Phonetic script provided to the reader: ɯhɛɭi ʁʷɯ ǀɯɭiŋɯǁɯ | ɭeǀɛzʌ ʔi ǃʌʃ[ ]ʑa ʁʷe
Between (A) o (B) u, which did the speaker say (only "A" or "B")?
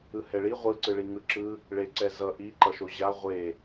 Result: A